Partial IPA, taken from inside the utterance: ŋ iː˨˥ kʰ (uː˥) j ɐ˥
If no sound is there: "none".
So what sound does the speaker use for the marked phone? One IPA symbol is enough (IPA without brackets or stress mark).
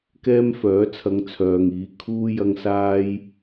uː˥